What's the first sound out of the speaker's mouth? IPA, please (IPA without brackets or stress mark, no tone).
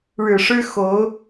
ɻ